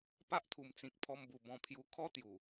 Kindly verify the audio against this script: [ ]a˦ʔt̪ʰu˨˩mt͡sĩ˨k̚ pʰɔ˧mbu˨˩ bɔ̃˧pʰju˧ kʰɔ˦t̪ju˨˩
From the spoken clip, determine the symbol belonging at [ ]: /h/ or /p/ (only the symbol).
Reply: p